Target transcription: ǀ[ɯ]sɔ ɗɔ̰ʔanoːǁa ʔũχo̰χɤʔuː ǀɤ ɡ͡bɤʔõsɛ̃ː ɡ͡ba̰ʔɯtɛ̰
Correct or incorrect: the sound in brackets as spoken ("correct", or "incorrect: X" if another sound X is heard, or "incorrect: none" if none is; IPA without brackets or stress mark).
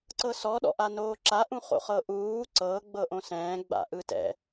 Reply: incorrect: ɤ